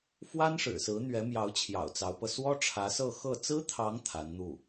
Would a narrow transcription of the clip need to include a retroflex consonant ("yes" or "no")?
yes